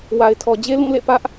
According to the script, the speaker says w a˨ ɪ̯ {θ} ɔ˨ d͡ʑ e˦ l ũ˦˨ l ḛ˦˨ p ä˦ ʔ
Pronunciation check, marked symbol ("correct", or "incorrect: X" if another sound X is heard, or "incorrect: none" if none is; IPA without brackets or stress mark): incorrect: tʰ